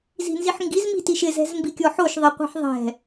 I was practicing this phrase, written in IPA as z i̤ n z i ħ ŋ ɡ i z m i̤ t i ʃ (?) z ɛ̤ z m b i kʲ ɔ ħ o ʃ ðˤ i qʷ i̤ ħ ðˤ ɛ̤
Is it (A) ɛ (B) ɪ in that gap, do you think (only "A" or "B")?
B